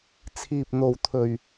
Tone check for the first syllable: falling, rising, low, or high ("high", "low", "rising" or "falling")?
low